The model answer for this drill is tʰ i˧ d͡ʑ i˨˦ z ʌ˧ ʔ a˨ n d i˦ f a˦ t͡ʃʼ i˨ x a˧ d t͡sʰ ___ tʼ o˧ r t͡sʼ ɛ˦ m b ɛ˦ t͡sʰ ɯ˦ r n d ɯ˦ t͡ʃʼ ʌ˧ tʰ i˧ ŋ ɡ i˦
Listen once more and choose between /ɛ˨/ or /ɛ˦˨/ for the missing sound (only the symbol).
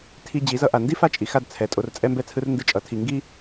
ɛ˨